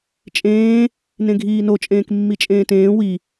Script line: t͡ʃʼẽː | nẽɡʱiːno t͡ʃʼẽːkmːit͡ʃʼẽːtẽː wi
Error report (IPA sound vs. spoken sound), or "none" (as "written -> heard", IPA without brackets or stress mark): none